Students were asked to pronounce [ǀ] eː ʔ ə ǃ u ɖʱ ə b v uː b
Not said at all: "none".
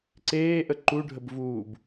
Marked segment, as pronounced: ǀ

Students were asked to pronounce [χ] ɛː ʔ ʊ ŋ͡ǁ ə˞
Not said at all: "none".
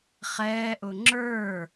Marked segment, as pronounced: χ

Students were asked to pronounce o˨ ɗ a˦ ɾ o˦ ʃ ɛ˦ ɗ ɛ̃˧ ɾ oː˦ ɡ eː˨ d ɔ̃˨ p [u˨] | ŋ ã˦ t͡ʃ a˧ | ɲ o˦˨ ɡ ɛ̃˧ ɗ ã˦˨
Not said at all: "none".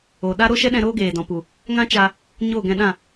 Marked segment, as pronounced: u˨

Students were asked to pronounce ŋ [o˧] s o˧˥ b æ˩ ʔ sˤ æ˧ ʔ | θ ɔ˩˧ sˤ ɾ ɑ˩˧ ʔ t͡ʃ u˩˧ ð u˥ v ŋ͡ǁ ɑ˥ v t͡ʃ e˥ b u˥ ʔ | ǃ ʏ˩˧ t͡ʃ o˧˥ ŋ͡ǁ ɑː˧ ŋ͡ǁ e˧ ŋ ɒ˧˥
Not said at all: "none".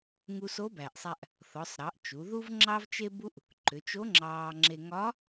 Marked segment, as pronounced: u˧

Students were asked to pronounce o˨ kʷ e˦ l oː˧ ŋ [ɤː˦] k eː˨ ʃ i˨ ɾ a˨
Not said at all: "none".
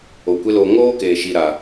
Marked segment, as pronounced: oː˦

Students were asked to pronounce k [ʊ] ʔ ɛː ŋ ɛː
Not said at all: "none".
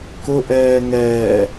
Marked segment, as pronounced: ʊ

